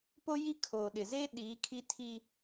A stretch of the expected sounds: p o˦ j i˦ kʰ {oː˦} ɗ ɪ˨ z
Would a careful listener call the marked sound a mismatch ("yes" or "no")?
yes